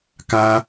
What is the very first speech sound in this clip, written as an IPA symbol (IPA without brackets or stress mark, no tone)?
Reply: k